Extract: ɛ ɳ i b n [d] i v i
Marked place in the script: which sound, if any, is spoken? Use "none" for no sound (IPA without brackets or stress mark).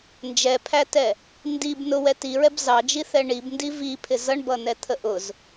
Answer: d